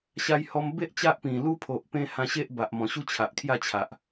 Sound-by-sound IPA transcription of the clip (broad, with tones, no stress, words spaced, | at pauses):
ɕa˧jhɔ˧mbe˦ʔ t͡ɕa˦ʔpĩ˨˩ lu˦pʰo˨ʔ pẽ˧ hã˧ɕe˦ʔ ba˨ʔmɔ̃˨˩ɕu˦ t͡ɕʰa˨ʔkʰja˥˧t͡ɕʰa˨ʔ